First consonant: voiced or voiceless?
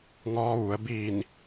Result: voiced